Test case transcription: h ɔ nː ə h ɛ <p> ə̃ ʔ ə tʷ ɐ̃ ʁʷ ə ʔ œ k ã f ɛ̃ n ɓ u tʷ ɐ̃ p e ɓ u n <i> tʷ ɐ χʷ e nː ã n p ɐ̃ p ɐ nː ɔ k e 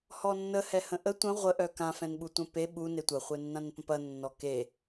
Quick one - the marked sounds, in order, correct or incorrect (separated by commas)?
incorrect, incorrect